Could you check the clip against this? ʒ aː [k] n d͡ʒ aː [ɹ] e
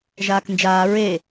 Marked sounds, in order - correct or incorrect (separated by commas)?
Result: correct, correct